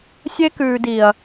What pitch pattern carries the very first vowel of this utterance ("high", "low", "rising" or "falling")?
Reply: high